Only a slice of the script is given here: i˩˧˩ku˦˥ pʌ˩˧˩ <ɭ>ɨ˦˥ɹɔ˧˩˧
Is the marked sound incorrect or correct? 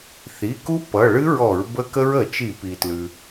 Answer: correct